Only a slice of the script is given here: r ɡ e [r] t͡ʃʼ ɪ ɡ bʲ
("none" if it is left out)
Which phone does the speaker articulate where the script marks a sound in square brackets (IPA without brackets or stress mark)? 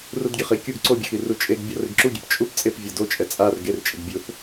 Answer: r